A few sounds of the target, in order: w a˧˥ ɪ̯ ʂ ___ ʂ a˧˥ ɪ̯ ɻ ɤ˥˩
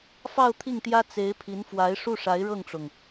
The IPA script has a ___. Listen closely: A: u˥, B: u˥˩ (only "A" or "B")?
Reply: B